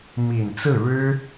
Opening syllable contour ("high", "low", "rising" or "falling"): low